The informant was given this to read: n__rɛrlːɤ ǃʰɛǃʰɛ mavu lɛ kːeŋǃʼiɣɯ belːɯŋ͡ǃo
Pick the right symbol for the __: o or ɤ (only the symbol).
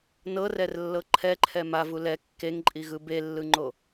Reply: ɤ